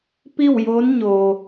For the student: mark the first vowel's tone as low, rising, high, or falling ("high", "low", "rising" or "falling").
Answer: falling